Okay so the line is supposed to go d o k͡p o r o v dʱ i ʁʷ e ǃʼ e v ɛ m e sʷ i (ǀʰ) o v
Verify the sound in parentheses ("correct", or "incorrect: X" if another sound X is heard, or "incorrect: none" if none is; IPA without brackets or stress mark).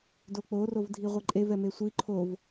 incorrect: ǃʰ